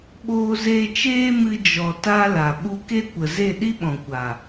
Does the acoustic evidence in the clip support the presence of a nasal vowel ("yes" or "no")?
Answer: yes